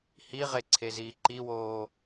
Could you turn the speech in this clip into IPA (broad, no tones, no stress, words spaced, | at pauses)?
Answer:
hiʁeǀʰeziː ǃiwoː